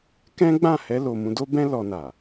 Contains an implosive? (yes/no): no